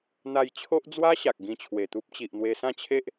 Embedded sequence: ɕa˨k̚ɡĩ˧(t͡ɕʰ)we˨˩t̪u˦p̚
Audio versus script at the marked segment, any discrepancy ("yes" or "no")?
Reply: no